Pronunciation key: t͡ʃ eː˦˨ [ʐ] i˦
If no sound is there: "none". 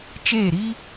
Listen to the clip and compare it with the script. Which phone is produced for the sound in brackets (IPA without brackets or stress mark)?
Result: ɾ